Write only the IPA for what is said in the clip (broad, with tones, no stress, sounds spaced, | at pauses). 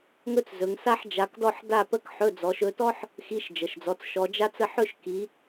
ŋ ɵ˥ t͡s z ɵ˨˦ ŋ s a˥ ħ d͡ʒ a˨˦ k d ɔ˥˧ ħ d a˥˧ p ə˥˧ k ħ ɵ˧˥˧ d͡z ɔ˨˦ ʃ ɵ˨˦ t ɔ˥ ħ | x i˧˥˧ ʃ d͡ʒ ə˩˧˩ ʃ d͡z ɔ˨˦ t͡s ʃ ɔ˨˦ d͡ʒ a˥ t͡s ə˥˧ ħ ɵ˥˧ ʃ k i˨˦